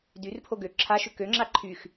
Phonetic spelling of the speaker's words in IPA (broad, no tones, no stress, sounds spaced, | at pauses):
d y r pʰ o ɡ ø ǁʰ a ʃ ʏ k ø ŋ͡ǁ a ǃʰ y x